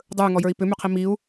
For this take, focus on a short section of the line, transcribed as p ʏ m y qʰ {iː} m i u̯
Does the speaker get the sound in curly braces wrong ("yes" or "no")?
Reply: yes